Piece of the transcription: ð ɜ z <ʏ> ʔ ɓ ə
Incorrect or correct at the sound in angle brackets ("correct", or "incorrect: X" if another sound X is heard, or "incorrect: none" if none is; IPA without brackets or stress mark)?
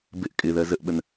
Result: incorrect: ə